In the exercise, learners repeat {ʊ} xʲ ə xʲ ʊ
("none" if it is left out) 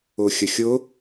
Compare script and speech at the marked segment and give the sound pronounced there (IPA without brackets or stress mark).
ʊ